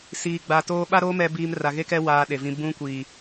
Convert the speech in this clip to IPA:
siː˨ɡ͡ba˨toː˦ ɓa˦ɾoː˦ mɛ˦biː˦m ra˨ɣe˦kɛ˦ waː˦ɗe˨vĩ˦ bũ˦kʷiː˨

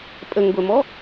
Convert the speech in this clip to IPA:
pʼəŋɡʷɛmɔ

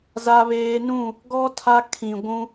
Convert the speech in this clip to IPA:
za˦βeː˦ nũ˦˨ | ɡɔ˦ tʰa˦ kʰĩ˨ɡʷũ˦

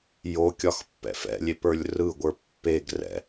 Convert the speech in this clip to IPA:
jokʲɒxpːɛ̰f ɛ̰lʲepə˞lʲ rɯɡʷə˞ pːeɡ rɛ̰

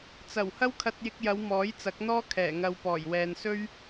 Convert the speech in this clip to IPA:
t͡sɐ˨˩whɐ˥wkʰɐ˧t̚ jɪ˧k̚jɐ˨˧w mɔː˨˥jt͡sɐ˨˥k̚n̪ɔː˥ kʰɛː˨˩ŋɐ˨w pɔː˨˩jwɛː˨nsɵ˥ɥ

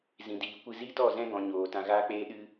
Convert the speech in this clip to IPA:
zĩ˨diː˨ kʷɨ˧zi˦tɔ˦˨zɛ̃˦ ɡɔ̃˧ɲoː˨ tã˧ɣaː˦k͡peː˦ ɗɨ˦

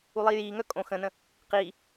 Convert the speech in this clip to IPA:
ulˠiːjiːŋœ kʼõ xə̃nə̃ | qiː

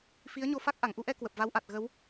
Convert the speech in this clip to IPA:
fi˨˦ə̯ɲo˧fa˦˥k̚ ʔa˧˩ŋʔu˧ʔɛ˧ kwə˨˩p̚va˨˦wʔa˨˩t̚ ɣə˨˦w

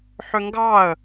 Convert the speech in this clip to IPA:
ħøŋɡɑə̯

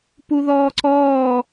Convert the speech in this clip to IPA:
puðɔːǀɔː

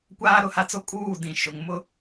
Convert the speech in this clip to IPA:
kʷaː˦ɾʊ˦˨ha˦t͡so˦ kʼuː˦˨dĩ˨ ʃʊ˨ŋ mʊ˦˨

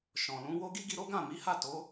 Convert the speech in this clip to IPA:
ʃɔ̃˨lũ˨˦wo˦ ɡi˦ɡi˧ɾo˦ ɡã˦˨mi˨˦ha˦˨ to˨˦

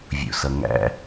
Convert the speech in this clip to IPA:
vʲṵsʌŋæ̰

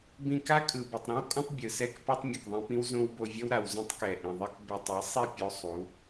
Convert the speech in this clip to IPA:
bĩ˧ka˦kʼɯ˨ bɛ˨tˤɾĩ˦wkʼõ˦tˤ bʲɯ˨sɛ˦k pa˦tˤmʲo˨kðˤĩ˧pĩ˦w zõ˦wbo˧ vʲʌ˦wɾa˨wzõ˦tˤkɛ˨ ʔĩ˨ðˤi˦k be˧tˤ i˨˦sˤi˦˨ pʲo˦sˤu˨˦

